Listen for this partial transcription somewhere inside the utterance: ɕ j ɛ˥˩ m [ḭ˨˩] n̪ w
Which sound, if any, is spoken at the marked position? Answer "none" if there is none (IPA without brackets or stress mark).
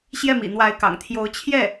ḭ˨˩